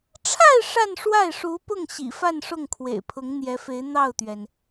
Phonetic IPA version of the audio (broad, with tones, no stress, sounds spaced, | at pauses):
ʈ͡ʂʰ a˥˧ ɪ̯ ʂ a˥˧ n ʂ w a˥˩ ɪ̯ ʂ u˧˥ p ʊ˥˩ ŋ ɕ ḭ˨˩ f a˥˧ n ʂ ʊ˥˩ ŋ kʰ w ḛ˨˩ ɪ̯ pʰ ʊ˧˥ ŋ n̪ j ɛ˧˥ f e˧˥ ɪ̯ n̪ ɑ˥˩ ʊ̯ t̪ ɥ ɛ˩ n